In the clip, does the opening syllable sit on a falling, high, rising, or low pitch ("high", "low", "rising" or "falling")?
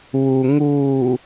low